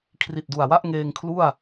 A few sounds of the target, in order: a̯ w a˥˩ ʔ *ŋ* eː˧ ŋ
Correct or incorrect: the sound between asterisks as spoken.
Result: correct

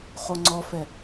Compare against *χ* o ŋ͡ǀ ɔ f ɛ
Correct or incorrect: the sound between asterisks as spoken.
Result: correct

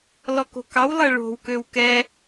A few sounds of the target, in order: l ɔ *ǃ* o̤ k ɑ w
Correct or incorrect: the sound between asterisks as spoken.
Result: incorrect: k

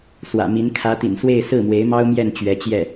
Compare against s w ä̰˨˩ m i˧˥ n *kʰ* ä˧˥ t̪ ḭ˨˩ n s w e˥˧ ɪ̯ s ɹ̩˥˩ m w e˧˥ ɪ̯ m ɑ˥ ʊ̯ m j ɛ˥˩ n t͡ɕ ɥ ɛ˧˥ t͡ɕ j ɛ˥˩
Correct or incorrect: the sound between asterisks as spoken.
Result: correct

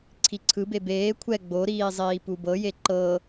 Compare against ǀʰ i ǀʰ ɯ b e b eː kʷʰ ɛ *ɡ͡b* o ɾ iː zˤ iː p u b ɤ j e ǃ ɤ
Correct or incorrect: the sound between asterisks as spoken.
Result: correct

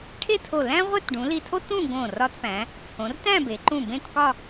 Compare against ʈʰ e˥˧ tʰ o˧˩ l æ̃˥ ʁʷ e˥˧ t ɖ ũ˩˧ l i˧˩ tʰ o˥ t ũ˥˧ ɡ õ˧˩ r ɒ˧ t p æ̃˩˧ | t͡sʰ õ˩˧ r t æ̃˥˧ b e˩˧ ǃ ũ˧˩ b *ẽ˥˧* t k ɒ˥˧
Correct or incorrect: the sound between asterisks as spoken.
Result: correct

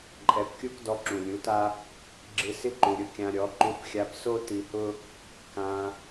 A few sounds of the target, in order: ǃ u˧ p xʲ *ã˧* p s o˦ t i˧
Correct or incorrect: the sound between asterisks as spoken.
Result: incorrect: a˧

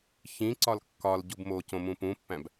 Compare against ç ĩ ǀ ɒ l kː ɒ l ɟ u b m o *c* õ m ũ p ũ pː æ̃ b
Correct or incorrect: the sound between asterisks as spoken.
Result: correct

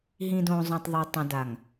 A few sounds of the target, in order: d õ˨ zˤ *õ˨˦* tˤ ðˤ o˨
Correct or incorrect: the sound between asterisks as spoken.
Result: incorrect: õ˨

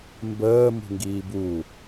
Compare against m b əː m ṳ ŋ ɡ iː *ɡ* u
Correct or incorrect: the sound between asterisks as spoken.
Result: incorrect: b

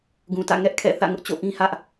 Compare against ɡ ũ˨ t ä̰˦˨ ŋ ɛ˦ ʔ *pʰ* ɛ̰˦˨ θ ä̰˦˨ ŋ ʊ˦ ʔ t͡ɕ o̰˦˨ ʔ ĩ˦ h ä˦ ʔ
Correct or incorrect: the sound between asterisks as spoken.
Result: incorrect: kʰ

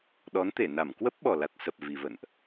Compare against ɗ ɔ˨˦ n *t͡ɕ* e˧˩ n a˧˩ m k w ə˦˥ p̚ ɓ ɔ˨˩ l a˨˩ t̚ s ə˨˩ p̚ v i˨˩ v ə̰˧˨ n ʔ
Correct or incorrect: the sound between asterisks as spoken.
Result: incorrect: t̪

